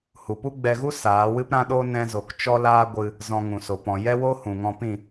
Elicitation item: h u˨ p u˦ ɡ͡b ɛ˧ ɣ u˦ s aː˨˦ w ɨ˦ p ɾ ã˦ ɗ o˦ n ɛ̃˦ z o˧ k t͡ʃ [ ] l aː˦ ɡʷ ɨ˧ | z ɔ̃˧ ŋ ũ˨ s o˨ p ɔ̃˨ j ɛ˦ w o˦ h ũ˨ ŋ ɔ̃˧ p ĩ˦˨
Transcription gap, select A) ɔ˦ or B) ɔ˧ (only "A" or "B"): A